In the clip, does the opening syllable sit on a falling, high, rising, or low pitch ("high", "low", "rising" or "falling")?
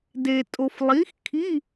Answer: low